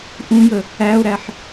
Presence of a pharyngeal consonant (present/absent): present